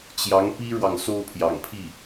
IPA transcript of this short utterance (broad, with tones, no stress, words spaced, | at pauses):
t͡ɕjɑ˧˥ŋpi˥ɻwɑ˨ŋ so˥ʊ̯pʰjɑ̰˨˩ŋpʰi˥˩